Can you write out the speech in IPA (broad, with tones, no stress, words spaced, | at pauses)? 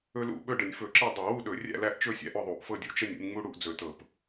ɵ˦lṵ˦ ɓɵ˥˨ɖə˧˩˧nʲ fɵ˧˩˧ǁe˥˨ dˤɤ˧˩˧wu˥˨ɗɵ˧˩˧ rʲæ̰˥˨læ˥˨ʔt͡ʃɵ˥˨ sʲæ̰˦ʔɵ˥˨ðˤu˧˩˧ʔ fɤ˥˨dʲu˥˨ t͡ʃə˥˨nʲ ṵ˦nʲ ŋ͡mu˦ɽu˥˨ʔd͡zɵ˧˩˧tɤ˧˩˧p